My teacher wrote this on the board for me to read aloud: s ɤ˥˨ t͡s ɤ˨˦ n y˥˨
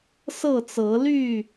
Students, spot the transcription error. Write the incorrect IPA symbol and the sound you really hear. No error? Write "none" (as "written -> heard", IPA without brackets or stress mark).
n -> l